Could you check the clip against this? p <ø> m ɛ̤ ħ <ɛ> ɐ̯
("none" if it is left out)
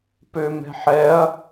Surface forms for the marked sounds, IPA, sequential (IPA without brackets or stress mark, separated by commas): ø, ɛ